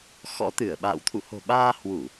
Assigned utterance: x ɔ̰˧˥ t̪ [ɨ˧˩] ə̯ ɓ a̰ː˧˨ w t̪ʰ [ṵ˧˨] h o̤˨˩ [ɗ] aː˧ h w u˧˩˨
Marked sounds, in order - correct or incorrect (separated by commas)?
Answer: correct, correct, incorrect